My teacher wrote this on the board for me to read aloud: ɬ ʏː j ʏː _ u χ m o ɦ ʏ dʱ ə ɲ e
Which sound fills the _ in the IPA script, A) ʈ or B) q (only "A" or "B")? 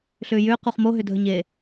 B